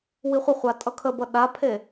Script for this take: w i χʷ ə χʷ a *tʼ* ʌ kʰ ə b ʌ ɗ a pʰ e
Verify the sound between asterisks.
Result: correct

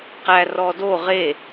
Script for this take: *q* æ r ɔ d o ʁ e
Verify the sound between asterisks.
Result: correct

